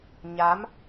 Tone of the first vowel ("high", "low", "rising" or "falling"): rising